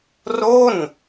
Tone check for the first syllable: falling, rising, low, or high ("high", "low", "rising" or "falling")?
falling